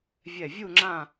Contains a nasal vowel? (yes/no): yes